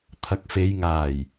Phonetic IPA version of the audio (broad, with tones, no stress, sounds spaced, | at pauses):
t̪ʰ ɐ˨˥ k̚ f e˨˧ j ŋ aː˨˩ j